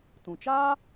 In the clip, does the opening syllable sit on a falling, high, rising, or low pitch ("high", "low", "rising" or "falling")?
low